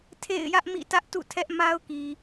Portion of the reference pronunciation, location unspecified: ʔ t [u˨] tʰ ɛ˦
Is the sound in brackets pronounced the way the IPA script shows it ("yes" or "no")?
no